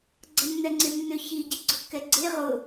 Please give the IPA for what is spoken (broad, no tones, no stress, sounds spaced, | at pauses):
ɡ͡ǀ ɐ nː ɛ ŋ͡ǀ ɪ nː ʏ ç i ɟ i ɡ͡ǀ ʊ kː ɛ ɡ͡ǀ e ʁ ʊ